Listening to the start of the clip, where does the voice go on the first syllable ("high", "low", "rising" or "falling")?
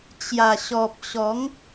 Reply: low